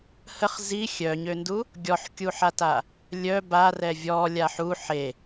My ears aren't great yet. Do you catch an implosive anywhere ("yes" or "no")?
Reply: no